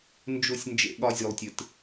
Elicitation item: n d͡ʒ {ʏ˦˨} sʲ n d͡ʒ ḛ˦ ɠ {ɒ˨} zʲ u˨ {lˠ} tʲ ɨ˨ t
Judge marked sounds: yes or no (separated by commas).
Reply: no, no, yes